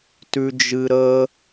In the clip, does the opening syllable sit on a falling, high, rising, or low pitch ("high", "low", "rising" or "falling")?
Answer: high